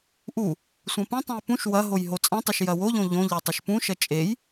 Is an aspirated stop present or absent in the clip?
absent